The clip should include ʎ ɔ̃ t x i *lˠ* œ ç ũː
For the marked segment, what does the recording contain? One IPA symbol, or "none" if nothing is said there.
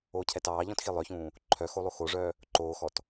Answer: lˠ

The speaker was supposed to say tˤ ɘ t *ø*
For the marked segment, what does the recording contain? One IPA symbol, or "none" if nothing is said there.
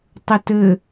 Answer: ɘ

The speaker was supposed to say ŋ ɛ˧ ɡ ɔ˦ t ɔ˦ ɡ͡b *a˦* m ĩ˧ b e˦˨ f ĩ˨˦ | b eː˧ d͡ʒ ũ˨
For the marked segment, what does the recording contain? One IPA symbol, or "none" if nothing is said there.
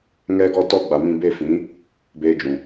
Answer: a˨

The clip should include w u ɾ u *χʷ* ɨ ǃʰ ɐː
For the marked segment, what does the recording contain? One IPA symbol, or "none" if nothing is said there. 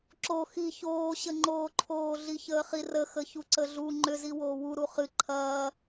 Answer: χ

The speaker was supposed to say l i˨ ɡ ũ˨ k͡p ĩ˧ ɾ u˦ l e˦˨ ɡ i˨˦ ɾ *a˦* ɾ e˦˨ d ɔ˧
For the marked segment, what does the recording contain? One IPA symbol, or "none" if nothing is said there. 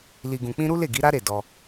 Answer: a˦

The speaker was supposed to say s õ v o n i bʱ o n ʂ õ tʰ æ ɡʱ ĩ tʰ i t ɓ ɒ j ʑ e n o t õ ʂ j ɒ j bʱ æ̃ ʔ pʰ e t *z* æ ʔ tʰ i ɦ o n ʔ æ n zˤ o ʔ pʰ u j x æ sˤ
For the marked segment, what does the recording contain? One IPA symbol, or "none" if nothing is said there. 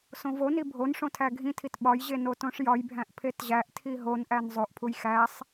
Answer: ʑ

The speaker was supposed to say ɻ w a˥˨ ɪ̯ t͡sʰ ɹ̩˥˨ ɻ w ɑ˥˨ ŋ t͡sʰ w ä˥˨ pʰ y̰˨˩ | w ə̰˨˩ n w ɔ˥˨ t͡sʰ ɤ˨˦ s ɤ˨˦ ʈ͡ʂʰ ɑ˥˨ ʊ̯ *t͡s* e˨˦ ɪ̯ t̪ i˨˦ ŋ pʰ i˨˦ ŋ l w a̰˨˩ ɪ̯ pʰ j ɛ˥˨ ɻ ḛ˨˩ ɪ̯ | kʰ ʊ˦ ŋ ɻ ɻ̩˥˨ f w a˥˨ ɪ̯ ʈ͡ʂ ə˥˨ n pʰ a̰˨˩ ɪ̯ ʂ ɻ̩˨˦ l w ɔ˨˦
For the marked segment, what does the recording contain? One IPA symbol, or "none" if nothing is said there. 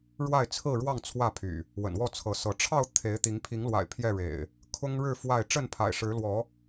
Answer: t̪ʰ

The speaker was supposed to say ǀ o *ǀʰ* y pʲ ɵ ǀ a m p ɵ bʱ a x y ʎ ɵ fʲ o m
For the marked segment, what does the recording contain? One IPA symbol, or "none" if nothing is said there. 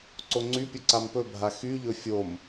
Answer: ŋ͡ǀ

